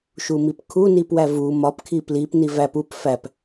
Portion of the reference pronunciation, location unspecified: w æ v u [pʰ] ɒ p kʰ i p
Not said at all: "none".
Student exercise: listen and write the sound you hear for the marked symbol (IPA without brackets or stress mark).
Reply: m